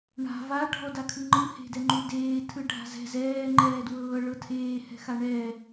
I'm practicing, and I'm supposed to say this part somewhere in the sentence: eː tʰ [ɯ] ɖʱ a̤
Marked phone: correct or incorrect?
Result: correct